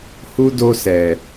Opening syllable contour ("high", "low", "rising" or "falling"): high